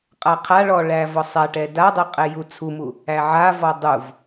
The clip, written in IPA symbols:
qʼ a qʰ a ɭ ɔ ɭ æ v ɔ sˤ ɛ ʈ ɛ d a dˤ e qʼ ɛ j u t͡sʰ u m u | æ ʕ a v ɔ dˤ u v

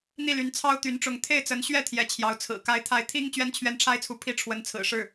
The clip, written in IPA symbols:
n̪ i˥˩ l y˧˥ n t͡sʰ ɑ˥ ʊ̯ t̪ y˧˥ n ʈ͡ʂ ʊ˧˥ ŋ t̪ʰ e˥˩ ɪ̯ t͡s ə˧˥ n ɕ ɥ ɛ˥˩ t̪ʰ j ɛ˧˥ t͡ɕʰ j ɑ˧˥ ʊ̯ t͡sʰ ɹ̩˨˩ k a˧˥ ɪ̯ t̪ʰ a˧˥ ɪ̯ t̪ʰ i˥ ŋ t͡ɕ ɥ ɛ˥ n t͡ɕʰ ɥ ɛ˥ n ʈ͡ʂʰ a˥ ɪ̯ t͡sʰ u˧˥ pʰ i˥ ʈ͡ʂʰ w ə˧˥ n t͡sʰ ɹ̩˨˩ ʂ ɻ̩˥˩

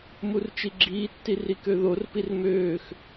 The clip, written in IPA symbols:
m u r t͡ʃ i ɡ͡ǁ iː tː i r i k ø ð o r p i r m øː x

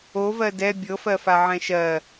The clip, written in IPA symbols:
o v ɜ d ɛ bʲ ɤ f ɜ f a ʕ ɛ̃ ʃ ɜ

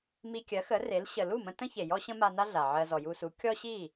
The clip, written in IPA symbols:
m i˧ kʲ ɜ˩˥ x ə˩˥ r e˩˥ l ɕ ə˩ l u˥˩ m ə̃˧ t ə̃˥ ç e˩ j ɔ˥ ɕ ə̃˥ m a˧ n a˥ ɮ a˩ ʕ ɜ˧ z ɔ˩ j u˧ s u˩˥ kʲ ɔ˥ ɕ i˥˩

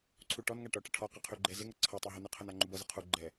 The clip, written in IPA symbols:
ǀʰ u ʈ ɔ n ŋ a ʈ ɔ ʈ ʌ ʈʰ ɔ q ʌ qʰ y ɡ͡ǃ ɛ z ɪ ŋ ʌ ǀʰ ʌ tˤ e ɦ u n ə qʰ ə n a ŋ͡ǃ u b ʌ z ʌ qʰ u ɡ͡ǃ ɛ

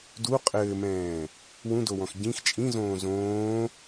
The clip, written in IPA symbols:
d u qʼ ɘː m ɛ̃ː | w ũ d o w ɔ̃ x ɟ ĩ x t͡ʃʼ ĩ z õː z õː

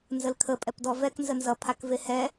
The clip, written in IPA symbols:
n z ə l kʰ ə pʼ ɛ p d ɔ v ɛ k n z ə n z ʌ pʰ a k v e h ɛ

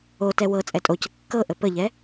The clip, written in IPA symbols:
o t ɛ w ɤ t͡sʼ ɛ tʼ o c ə kː ɤ ʔ ə p ə ʎ ɛ

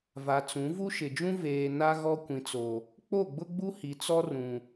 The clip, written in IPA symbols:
v a˨ t͡s ũ˨˦ v u˦ ʃ ɪ˨ d͡ʒ ũ˦ v eː˨ n a˦ ɣ ɔ˦ kʷ ĩ˨ t͡s o˨ | k͡p o˦˨ ɡ͡b ʊ˦ ɡ͡b u˦ h i˨ t͡s ɔ˦ r ũ˨

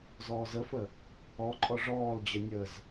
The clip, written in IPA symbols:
z ɔː z ə f ə | ɔ ǃʼ ɔ ʐ ɔː l d͡ʑ ə nʲ ə z

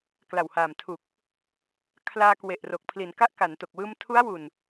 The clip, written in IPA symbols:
k l a˨˩ w h aː˨˩ m tʰ u˨˩ k̚ | kʰ l aː˧ k w e˨˩ ʔ r o˨˩ k̚ pʰ l i˩˦ n k a˦˥ ʔ k a˩˦ n t o˨˩ k̚ w ɯː˧ m tʰ u˦˥ a̯ w u˨˩ n

